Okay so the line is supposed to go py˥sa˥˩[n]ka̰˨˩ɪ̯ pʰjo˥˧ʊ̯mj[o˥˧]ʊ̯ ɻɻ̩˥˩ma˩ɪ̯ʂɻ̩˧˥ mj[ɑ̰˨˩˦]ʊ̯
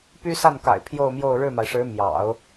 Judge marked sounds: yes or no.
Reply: yes, yes, yes

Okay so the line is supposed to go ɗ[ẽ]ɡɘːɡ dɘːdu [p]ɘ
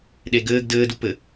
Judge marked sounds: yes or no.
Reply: no, yes

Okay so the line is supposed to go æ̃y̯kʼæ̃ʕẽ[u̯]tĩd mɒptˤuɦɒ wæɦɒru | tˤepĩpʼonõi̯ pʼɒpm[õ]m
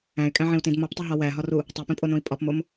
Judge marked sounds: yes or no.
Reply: yes, no

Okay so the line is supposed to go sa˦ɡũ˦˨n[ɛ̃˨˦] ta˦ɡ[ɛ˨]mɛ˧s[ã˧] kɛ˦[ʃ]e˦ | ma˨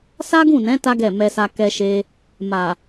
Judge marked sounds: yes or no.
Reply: yes, no, no, yes

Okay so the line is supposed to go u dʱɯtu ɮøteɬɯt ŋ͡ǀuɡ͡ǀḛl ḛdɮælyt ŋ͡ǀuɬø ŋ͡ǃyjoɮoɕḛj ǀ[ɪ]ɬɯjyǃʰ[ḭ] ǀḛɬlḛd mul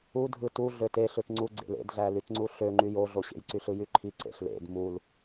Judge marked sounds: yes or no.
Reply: no, no

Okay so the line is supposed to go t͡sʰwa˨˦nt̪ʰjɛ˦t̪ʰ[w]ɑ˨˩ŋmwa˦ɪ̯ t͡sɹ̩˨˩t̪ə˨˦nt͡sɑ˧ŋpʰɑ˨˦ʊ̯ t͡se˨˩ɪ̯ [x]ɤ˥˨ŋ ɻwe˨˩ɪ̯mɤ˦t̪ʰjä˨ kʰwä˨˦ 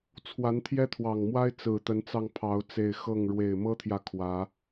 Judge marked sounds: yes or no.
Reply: yes, yes

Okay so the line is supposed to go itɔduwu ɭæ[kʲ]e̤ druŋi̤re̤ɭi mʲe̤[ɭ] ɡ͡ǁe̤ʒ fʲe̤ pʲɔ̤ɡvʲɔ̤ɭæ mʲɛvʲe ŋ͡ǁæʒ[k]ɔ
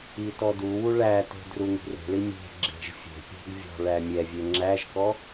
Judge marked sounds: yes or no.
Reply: no, no, yes

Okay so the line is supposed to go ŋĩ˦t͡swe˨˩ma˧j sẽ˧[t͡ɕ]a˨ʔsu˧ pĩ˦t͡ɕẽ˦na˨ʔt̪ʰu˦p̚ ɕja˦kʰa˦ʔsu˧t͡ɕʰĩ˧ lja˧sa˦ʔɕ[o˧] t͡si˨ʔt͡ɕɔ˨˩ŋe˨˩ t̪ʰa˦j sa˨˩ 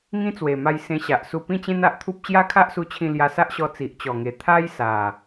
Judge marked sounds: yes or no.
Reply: no, no

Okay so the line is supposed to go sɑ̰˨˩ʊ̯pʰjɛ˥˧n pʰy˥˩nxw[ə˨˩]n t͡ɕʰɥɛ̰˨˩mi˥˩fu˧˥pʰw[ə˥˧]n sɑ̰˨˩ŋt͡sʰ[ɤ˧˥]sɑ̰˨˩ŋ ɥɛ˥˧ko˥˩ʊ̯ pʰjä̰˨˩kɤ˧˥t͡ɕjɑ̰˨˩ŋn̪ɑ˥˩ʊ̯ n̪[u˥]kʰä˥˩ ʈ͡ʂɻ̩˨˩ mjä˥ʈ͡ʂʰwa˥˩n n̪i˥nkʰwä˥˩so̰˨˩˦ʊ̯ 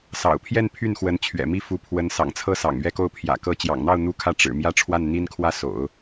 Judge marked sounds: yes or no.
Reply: no, no, no, yes

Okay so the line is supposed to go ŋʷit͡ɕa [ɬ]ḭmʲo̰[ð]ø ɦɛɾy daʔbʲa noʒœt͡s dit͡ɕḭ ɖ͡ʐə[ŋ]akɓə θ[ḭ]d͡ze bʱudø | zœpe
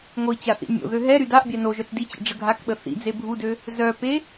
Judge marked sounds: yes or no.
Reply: no, yes, no, yes

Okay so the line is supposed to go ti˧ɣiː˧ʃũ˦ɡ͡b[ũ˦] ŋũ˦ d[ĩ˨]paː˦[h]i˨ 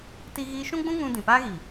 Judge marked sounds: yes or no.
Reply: yes, yes, no

